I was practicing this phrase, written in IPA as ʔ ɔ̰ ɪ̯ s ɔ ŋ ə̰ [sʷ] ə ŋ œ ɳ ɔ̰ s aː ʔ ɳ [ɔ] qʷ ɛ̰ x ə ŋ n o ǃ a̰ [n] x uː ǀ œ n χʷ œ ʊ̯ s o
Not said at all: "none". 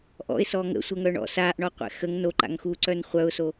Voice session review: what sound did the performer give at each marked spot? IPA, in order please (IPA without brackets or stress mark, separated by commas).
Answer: sʷ, ɔ, ŋ